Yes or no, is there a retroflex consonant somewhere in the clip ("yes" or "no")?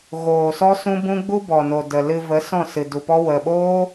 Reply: no